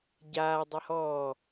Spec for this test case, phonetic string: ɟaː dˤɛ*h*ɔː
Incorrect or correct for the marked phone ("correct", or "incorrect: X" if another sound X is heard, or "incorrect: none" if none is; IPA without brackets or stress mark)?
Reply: correct